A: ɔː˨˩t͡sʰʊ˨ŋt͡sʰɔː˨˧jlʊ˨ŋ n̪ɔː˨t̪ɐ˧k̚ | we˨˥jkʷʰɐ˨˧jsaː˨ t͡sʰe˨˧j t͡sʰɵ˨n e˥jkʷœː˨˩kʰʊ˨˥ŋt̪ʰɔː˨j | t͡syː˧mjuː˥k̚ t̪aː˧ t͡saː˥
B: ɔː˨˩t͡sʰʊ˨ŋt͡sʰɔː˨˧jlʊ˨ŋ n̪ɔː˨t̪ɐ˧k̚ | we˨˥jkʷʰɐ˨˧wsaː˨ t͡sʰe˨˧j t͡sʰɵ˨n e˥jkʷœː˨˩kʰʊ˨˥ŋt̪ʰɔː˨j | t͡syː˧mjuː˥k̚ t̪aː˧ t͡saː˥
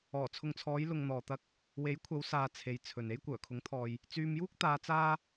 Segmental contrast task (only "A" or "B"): B